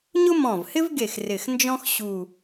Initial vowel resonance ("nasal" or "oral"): oral